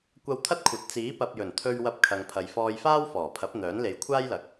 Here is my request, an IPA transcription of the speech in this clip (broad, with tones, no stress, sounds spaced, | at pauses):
kʷ ɐ˧ w t̪ʰ ɐ˥ t̚ kʷʰ ɐ˨˥ t̚ t͡s iː˨˥ p ɐ˨ p̚ j ɵ˨˩ n t̪ʰ ɵ˧ ɥ w ɐ˧ p̚ kʰ ɐ˨ ŋ pʰ ɐ˨ j f ɔː˧ j f aː˥ w f ɔː˨˩ pʰ ɐ˨˥ p̚ n̪ œː˨˥ n l e˨˧ j kʷʰ aː˥ j l ɐ˨˥ k̚